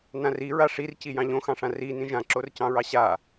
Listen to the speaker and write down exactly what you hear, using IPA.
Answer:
n ã r i ɹ a ʂ i r c i j ɑ̃ ʎ õ x ɑ̃ ʂ ã r i n ĩ ʒ ã ǁ o r c ɑ̃ ɹ ɑ ɕ a

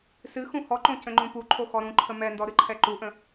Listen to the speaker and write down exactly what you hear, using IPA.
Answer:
s ɨ x ũ h ɔ ǃ õ c ə̃ ŋ͡ǃ ũ p u ǃʰ o x ɔ ɾ ũ ǃʰ ə m ɛ n d ɔ ɾ ɨ ǃʰ ɛ ǃ u ʔ ə̃

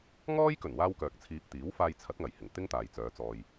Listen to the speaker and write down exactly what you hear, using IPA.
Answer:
ŋ ɔː˥ j k ɵ˨˩ n w aː˥ w k œː˨ k̚ t͡sʰ iː˧ p̚ t̪ iː˨˥ w f aː˧ j t͡sʰ ɐ˨˥ t̚ ŋ ɐ˨˩ j h ɪ˨˩ ŋ t̪ ɪ˥ ŋ t̪ aː˨ j t͡s œː˨˧ t͡s ɔː˨ j

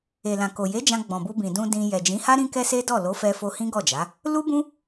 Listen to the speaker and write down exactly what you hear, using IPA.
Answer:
e˨ l ã˨ k o˨ j e˨˦ d͡ʒ ã˧ ɡ͡b ɔ̃˨ b u˧ b ĩ˨ d ũ˧ d ĩ˧ j ɛ˨ d͡ʒ ĩ˨˦ h a˦ ɾ ĩ˦ k ɛ˦ s e˦ d ɔ˦˨ l o˨˦ f ɛ˧ f o˧ h ĩ˦ ɡ ɔ˦˨ d͡ʒ a˨˦ | l u˦ b ũ˦

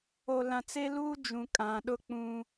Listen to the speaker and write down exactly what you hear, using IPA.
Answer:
o˨ l ã˨ t͡s e˦ l uː˦ d͡ʒ ũ˨ kʼ ã˨ ɗ ʊ˦ k͡p ũ˦

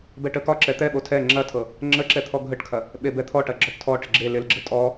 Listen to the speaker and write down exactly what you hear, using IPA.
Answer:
b ɛ ʈ ə k ɒ ǁ ɛ t̪ ɛ ɓ o tʰ ɛ ŋ͡ǁ ɐ tʰ ɤ | ŋ͡ǁ ə ǁ ɛ t̪ʰ ɔ ɡʱ ə ʈ kʰ ɐ | ɓ e b ɛ t̪ʰ ɔ ʈ ɐ ɡ͡ǁ ɔ ʈ tʰ ɔ ʈ ɪ ɡ͡ǁ e l ɪ l ɡ͡ǁ ə tʼ ɔ

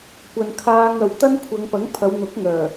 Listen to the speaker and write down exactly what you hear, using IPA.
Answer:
kʷ ɐ˨ n kʰ aː˧ ŋ ɐ˨ w t̪ ɐ˥ n kʷʰ ɐ˨˧ ŋ p ɐ˨˥ ŋ pʰ ɐ˨˧ w n̪ ʊ˨˥ k̚ ŋ œː˨˩

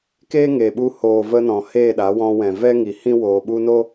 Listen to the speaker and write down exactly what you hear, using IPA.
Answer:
k eː˦ ŋ e˨ ɓ u˧ h oː˨ v ə˧ n ɔ̃˨ h eː˦˨ ɗ a˨˦ w ɔ̃˧ w ɛ̃˨ v ɛ˦ ŋ i˨ h ĩ˦ w oː˨ ɓ u˧ n o˦

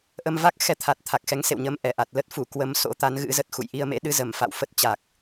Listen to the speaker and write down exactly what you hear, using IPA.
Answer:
ʔ ə˧ m v a˦˥ k̚ x ɛ˧ t̪ʰ a˨˩ t̚ t̪ʰ a˨˩ k̚ x ɛ˨˦ ŋ s ḛ˧˨ w ɲ ə˨˦ m ʔ ɛ˧˩ ʔ a˨˩ t̚ l ə˦˥ t̚ f u˧˩ k w ə˨˦ m s o̰˧˥ t̪ a˨˦ n ɣ ɨ̰˧˥ z ə˨˩ t̚ x ṵ˧˨ j ʔ i˧ ə̯ m ḛ˧˥ ɗ ɨ˨˦ z ə˧˩ m f a̰˧˨ w f ə˦˥ t̚ t͡ɕ a˨˩ k̚

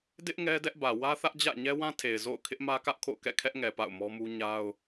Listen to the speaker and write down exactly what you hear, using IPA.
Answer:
d ɪ˦ ʔ ŋ ɛ˦ d ɛ˦ ʔ b ä˨ w ä˦ θ ä˦ ʔ d͡ʑ ä̰˦˨ ɲ ɛ˦ w ã˦ tʰ e˨ ɪ̯ z o̰˦˨ ʊ̯ kʰ ɪ˦ ʔ m ä˦ k ä˦ ʔ kʰ o̰˦˨ ʊ̯ k ɛ̰˦˨ kʰ ɛ˦ ʔ ŋ ɛ˨ p a̰˦˨ ʊ̯ m ɔ˦ m u˦ ɲ a˦ ʊ̯

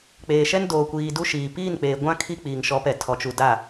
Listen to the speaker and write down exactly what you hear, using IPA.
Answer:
k͡p eː˨ ʃ ɛ˦ n d oː˨ kʷ iː˨ d u˦ ʃ iː˨ p iː˦˨ n k͡p eː˨ ɡʷ ã˦ kʰ i˦ k͡p iː˨ ŋ ʃ ɔ˨˦ p ɛ˨ tʰ ɔ˨ t͡ʃ u˨ d a˦˨

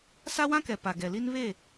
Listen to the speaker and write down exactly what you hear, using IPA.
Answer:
s a˦ w ã˦ k ɛ˨ p a˨ ɡ ɛ˨ l i˦ n β e˦˨

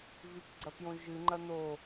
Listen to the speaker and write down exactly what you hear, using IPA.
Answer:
v ʉ k ɡ͡ǀ ɐ p j õ ʒ ɨ ŋ͡ǃ ɐ n o

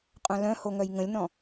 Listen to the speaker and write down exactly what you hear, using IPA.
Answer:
qʼ œ̃ l œ̃ h o ŋ œ j ŋ ə̃ lʲ n ɔ̃

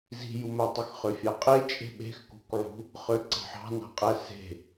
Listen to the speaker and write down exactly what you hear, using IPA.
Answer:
z i̤ j u m æ tˤ y x χ ø fʲ ɑ qʼ e t͡ʃʼ e̤ ɓ e̤ x k ṳ k ʕ ṳ | χ ø ǀ ɑ̤ ħ ɑ̤ n ɑ̤ qʼ æ s e̤

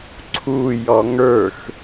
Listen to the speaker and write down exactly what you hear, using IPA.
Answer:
ǀʰ u j ɔ ŋ ə˞ x

